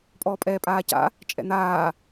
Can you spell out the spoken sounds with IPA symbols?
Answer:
pʼ ɔː pʼ ɛː pʼ aː c a̰ | t͡ʃʼ ɛ̰ n̪ aː

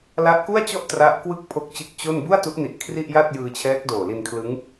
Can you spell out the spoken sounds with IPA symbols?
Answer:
l a˦˥ ʔ k u˥˩ a̯ t͡ɕ ɔ˥˩ ʔ t r a˦˥ ʔ k w ɯ˥˩ k̚ pʰ o˦˥ k̚ t͡ɕ ɯ˦˥ k̚ t͡ɕ o˥˩ n b u˥˩ a̯ t u˦˥ ʔ n i˨˩ ʔ kʰ r i˥˩ ʔ j a˥˩ t̚ j ɯː˧ t͡ɕʰ ɛː˦˥ k̚ d oː˨˩ l i˧ n kʰ l ɯ˦˥ ŋ

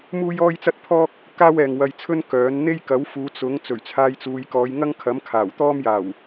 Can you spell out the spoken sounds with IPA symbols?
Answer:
m uː˥ j ɔː˥ j t͡s ɐ˥ t̚ pʰ ɔː˥ k̚ | k aː˥ w ɛː˨ ŋ w ɐ˧ j t͡sʰ ɵ˥ n k œː˨˥ n n̪ e˥ j k ɐ˨˥ w f uː˨˧ t͡s ʊ˨˥ ŋ t͡s ɵ˨˩ ɥ t͡sʰ aː˧ j t͡s uː˨˧ j k ɔː˨˧ j ŋ ɐ˥ ŋ kʰ ɐ˨˥ m kʰ aː˨˩ w t̪ ɔː˥ m j aː˨˩ w

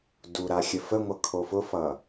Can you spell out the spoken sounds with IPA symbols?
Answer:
d u ɾ a xʲ ə f ə ŋʷ ʌ kʰ o f ʊ f ʌ

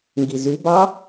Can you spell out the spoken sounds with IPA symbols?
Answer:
ŋ ɡ i z y b ɑ

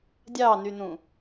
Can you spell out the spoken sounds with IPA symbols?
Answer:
dʲ ɑ n y n ũ

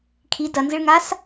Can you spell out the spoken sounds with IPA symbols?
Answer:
kʰ i d ɐ n z ɨ ɭ ŋ a s

